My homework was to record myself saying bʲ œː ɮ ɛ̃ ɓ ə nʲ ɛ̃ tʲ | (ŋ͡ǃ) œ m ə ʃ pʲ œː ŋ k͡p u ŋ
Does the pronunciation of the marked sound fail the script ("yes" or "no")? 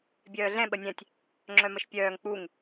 yes